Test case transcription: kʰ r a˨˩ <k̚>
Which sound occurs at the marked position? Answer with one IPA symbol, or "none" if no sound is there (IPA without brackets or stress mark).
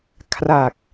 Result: k̚